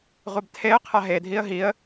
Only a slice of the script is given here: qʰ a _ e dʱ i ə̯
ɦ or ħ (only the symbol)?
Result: ɦ